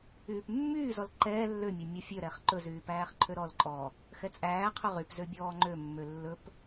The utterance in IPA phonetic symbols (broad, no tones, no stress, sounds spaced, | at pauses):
yː p mː yː z ɔ l ǃ ɛː lː ø mʲ æ mʲ ɔ fʲ ø ɾ ɛ χ ǃ ɵ z yː p æː χ ǃʰ ø ɾ ɔ l ǃʼ ɔː | x ɛ t͡sʼ æː qʰ ɵ ʁ y p z ø bʲ ɔː ŋ͡ǃ ø mː ø lː ɵ p